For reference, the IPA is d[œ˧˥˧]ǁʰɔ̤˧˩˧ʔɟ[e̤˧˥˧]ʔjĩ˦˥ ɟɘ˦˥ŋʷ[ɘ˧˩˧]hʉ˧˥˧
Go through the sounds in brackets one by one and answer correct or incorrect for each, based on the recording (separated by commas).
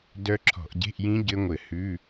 incorrect, correct, correct